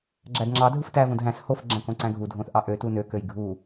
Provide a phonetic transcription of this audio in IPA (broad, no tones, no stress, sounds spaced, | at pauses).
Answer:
ɡ͡ǁ æ d ŋ͡ǁ ɑ dʱ ɯ f t æ v õ d ɦ æ̃ s h o f ɡ͡ǁ æ̃ k õ ǀ æ̃ ɡʱ u dʱ õ θ ʔ ɑ ʔ ø t u n ø k ø j ɡʱ u